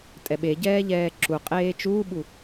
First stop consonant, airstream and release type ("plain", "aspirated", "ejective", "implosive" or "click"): ejective